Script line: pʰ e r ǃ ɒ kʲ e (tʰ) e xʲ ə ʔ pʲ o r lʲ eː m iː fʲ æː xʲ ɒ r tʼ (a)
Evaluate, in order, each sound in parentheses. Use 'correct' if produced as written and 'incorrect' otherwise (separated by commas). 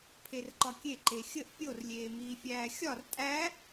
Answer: incorrect, incorrect